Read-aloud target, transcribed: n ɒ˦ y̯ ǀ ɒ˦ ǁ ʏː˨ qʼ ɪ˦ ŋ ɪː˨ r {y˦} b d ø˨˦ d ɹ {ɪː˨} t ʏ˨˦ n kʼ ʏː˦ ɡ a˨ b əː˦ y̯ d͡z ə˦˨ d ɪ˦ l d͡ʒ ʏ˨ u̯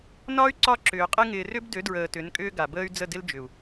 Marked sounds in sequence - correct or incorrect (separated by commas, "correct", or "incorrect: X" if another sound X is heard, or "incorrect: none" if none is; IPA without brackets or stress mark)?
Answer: incorrect: ʏ˦, incorrect: əː˨